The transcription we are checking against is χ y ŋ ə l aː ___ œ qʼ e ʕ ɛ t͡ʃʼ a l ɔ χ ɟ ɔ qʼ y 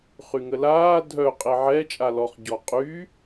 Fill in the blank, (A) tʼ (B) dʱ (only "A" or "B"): B